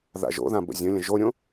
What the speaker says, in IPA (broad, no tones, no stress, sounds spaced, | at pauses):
ð a̰ ʒ o̰ ð ã b ə̰ zʲ ə̃ lʲ ə̃ ʒ o ɾʲ õ